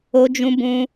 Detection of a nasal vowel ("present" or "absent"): present